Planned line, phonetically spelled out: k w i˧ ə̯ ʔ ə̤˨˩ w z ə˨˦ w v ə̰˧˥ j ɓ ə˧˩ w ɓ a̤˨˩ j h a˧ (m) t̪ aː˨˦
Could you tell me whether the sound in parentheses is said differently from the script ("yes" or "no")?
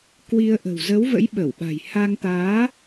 yes